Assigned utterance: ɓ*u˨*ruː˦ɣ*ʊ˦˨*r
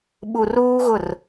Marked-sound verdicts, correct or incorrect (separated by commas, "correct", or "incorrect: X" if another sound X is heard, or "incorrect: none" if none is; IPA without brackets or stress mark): correct, correct